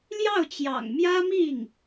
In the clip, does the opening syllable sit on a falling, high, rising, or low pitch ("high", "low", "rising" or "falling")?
falling